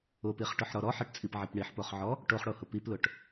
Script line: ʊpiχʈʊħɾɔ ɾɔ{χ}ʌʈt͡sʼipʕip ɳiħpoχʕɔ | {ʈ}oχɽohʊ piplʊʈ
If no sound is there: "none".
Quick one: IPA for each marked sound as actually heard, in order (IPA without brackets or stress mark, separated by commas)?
ħ, ʈ